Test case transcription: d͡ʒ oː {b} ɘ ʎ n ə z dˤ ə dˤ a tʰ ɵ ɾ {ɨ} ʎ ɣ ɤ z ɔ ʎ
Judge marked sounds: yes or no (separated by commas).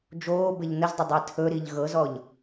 yes, no